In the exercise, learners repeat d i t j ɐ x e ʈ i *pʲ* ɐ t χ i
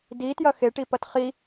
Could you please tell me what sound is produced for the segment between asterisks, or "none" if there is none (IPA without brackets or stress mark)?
p